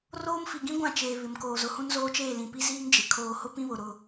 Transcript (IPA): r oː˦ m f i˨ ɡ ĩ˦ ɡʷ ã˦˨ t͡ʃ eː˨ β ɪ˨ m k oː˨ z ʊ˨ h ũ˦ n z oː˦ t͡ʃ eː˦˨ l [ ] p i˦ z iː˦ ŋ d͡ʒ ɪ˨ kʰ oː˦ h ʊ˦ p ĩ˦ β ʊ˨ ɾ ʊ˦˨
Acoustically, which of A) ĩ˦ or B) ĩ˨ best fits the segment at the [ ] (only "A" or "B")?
B